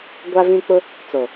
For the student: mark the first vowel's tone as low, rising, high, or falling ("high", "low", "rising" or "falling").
high